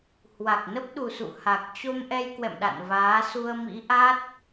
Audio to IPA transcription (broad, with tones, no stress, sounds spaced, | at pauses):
h w a˨˩ k̚ n ə˦˥ p̚ ɗ u˨˩ s ṵ˧˨ h a˨˩ k̚ t͡ɕ o˧ m ʔ ɛ˧ j k w ɛ̰˧˨ m ɗ a̰˧˨ n v aː˨˦ s u˧ ə̯ m ḭ˧˥ ʔ a˦˥ t̚